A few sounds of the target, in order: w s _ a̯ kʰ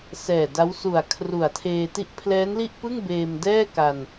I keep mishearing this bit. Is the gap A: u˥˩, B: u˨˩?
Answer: B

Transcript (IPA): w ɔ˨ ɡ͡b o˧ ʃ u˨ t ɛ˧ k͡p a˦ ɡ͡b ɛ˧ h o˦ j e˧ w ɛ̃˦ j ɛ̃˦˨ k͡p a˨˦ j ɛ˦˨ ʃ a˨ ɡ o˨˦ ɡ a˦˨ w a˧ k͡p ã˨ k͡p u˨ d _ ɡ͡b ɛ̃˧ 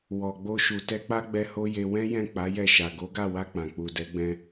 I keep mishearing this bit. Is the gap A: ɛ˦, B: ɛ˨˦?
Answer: B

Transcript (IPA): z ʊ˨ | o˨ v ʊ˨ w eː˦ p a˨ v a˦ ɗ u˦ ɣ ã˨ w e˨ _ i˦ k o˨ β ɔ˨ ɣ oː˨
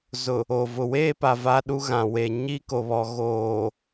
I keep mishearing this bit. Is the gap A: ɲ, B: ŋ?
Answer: A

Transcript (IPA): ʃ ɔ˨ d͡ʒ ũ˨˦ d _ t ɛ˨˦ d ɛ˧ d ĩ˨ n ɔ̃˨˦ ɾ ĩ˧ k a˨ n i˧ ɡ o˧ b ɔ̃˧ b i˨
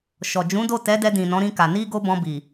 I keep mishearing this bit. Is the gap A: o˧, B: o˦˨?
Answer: B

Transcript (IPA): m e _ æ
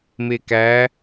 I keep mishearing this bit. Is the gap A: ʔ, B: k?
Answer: B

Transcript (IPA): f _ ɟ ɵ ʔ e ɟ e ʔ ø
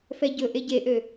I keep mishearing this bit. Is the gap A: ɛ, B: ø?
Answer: A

